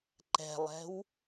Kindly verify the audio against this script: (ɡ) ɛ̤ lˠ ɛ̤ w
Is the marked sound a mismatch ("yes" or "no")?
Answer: yes